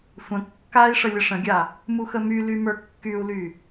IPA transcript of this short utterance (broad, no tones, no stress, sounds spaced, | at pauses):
sʷ ə̃ kː a i̯ ʂ ə lʲ ə ʂ ə̃ ɡʲ a | m u x ə m y l y m ə˞ kː y u̯ l y